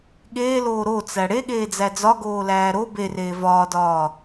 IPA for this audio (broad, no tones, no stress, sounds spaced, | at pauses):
ɠ eː l oː ɾ o t͡s æ ɽ e ɠ eː d͡z æ d͡z ɒ ɡ oː l æː ɾ o b e r eː v ɒː d ɒː